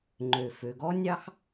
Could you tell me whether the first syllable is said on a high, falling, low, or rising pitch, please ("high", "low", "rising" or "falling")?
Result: low